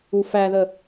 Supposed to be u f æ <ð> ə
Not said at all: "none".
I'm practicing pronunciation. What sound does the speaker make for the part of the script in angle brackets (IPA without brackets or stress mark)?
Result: ð